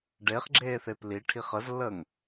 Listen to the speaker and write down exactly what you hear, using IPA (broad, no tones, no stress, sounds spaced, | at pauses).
ɖ e χ ɡ͡ǁ eː θ e p l i ʈʰ i χ ə z lː əː ŋ